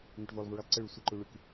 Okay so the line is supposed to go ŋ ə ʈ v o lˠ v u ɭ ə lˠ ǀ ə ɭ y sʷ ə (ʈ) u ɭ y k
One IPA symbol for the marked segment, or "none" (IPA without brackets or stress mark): ǃ